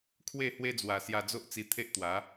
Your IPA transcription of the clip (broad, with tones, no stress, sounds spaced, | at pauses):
kʰ w e˥˧ h w e˦ d͡z w a˨˩ s j a˧ d͡z o˦ ʔ t͡s i˧ t̪ʰ e˦ ʔ t̪ w a˨˦